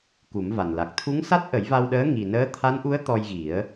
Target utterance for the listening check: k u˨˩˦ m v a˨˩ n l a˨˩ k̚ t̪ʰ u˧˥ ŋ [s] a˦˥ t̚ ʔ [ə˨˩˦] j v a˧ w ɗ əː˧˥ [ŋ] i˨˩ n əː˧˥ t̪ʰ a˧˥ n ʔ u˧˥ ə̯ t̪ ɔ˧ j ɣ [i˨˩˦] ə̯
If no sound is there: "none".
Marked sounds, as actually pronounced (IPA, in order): s, ə˨˩˦, ŋ, i˨˩˦

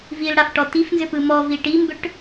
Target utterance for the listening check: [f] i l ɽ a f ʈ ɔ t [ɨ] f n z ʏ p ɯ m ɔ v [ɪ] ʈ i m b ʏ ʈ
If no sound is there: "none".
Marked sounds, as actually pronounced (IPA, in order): v, i, i

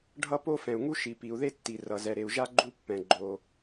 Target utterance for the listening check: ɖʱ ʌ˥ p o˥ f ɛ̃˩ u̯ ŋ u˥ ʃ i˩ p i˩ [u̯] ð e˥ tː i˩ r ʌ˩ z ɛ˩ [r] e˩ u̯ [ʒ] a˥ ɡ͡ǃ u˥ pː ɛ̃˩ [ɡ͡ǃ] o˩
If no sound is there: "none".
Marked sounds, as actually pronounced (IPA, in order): u̯, ɾ, ʒ, ɡ͡ǃ

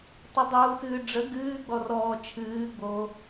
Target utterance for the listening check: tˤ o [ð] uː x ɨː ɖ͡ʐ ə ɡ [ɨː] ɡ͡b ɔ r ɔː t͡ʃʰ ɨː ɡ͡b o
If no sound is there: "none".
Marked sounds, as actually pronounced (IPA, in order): dˤ, ɨː

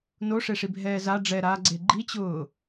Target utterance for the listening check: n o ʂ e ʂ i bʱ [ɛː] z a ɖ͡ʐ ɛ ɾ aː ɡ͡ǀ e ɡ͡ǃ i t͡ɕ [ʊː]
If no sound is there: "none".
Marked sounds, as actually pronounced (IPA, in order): ɛː, ʊː

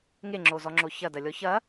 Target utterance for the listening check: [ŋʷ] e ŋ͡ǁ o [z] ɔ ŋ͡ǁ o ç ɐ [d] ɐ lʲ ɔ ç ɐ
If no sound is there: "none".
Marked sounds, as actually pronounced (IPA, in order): ŋ, z, d

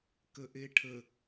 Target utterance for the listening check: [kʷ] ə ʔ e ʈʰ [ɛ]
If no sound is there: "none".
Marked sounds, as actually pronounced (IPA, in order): k, ə

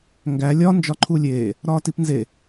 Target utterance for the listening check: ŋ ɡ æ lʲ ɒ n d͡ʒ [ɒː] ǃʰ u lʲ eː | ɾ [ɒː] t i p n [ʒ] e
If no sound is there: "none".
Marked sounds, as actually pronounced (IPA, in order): ɒ, ɒː, z

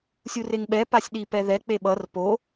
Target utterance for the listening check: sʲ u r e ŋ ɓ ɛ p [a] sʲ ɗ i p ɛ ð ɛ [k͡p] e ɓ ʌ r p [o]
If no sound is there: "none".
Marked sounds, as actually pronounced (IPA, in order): a, k͡p, o

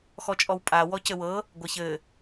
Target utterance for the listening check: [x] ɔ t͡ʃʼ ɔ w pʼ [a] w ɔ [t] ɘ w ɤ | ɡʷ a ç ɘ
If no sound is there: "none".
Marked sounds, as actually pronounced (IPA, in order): x, a, c

